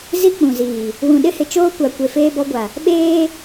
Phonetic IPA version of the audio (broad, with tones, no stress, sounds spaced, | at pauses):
z i˦ k͡p ũ˨ z iː˨ | w ũ˨ ɗ ɪ˦ h ɪ˨ t͡ʃ oː˦ kʷ a˨ kʷ e˨ f eː˦ b ɔ˦ ɡʷ a˨ | ɓ eː˦